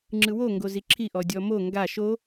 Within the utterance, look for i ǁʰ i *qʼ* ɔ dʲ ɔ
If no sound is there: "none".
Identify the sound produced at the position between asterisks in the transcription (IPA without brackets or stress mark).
ʔ